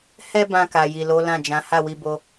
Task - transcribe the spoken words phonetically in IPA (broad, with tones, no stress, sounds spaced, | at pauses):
h ɛ˦ b ã˧ k a˨ j i˨ l o˨˦ l ã˦˨ d͡ʒ ã˨˦ h a˦˨ w i˧ b o˦